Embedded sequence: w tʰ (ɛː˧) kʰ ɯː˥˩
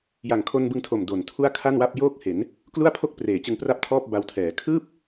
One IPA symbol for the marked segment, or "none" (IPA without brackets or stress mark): ɛː˩˦